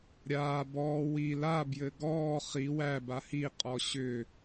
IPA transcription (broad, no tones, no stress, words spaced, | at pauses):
ɾʲaː bɔː wi labjɘ ɡɔː χi wæba hiqʼɔ ɕʏ